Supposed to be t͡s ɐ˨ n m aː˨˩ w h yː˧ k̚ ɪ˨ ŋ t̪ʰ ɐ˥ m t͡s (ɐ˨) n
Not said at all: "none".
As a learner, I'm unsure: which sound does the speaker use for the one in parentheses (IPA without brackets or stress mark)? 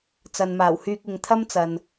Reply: ɐ˨